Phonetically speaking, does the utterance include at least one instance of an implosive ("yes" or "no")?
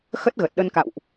yes